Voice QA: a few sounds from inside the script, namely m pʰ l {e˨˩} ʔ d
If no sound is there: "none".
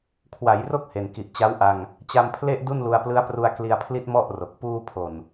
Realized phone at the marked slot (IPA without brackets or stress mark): e˥˩